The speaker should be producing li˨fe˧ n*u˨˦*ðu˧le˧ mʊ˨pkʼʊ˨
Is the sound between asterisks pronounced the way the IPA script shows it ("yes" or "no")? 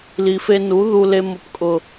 yes